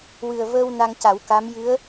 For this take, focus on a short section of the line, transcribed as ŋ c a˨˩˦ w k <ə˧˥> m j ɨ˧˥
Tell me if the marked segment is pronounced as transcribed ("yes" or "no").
no